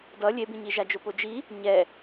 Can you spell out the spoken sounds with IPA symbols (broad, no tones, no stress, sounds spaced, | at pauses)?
d ʌ lʲ e b ĩ ɲ i ʒ a d͡ʒ o p o d͡ʒ i | ɲ ɛ